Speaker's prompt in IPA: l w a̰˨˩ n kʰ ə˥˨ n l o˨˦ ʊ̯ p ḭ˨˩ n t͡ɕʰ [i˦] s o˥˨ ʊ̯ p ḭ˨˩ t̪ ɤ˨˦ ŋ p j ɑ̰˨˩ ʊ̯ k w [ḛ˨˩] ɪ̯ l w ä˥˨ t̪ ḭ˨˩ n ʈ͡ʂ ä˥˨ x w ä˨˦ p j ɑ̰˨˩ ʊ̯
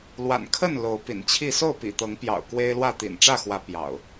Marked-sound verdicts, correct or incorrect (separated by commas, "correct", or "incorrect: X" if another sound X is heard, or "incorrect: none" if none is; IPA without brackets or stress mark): incorrect: i˥˨, incorrect: e˦